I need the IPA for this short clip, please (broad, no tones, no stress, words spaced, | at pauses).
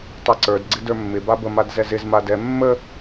tˤaǀə˞d ɡ͡ǀɪdə˞mːɪ babə madzɛzɪz madɛ mːə